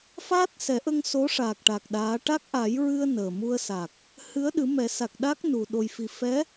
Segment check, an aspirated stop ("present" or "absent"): absent